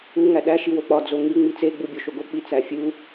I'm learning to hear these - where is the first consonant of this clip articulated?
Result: velum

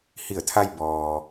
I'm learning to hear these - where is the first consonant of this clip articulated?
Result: throat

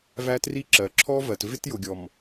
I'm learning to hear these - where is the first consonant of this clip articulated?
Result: lips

